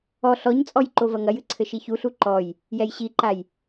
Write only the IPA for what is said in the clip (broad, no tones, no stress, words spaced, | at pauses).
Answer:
ɔ ɬɔɲt͡sʼɔj ǃovɐŋɐjɨ ǀʰɘʃiçuɬu ǃɔj | jɛjɕiǃaj